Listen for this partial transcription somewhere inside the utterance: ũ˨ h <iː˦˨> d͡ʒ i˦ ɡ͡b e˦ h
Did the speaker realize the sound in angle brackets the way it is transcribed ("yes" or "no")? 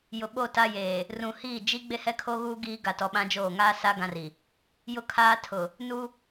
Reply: yes